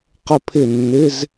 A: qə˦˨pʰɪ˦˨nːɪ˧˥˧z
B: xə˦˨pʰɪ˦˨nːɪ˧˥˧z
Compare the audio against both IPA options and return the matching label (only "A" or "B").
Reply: A